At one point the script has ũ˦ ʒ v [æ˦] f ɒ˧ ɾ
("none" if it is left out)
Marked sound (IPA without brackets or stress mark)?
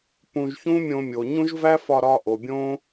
æ˦